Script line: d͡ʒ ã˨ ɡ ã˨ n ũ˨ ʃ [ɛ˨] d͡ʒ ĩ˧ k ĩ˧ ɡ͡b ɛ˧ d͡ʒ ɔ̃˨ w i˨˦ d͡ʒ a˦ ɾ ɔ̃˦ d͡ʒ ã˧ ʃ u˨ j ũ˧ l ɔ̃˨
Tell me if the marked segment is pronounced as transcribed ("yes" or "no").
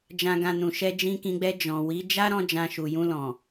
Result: no